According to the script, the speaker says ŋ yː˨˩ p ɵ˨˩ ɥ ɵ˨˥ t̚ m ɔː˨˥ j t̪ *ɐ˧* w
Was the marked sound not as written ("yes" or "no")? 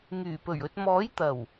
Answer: yes